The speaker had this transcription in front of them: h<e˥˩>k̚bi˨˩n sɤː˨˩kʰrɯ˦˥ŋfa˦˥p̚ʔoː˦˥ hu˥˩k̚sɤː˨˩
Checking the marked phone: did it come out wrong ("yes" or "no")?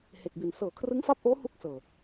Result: yes